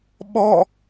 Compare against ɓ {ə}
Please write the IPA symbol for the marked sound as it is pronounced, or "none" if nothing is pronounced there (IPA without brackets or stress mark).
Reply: ɔ